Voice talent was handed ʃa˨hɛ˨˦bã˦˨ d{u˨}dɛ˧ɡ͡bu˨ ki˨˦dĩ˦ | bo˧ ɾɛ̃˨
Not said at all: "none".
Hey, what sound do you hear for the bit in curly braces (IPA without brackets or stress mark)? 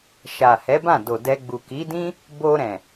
o˨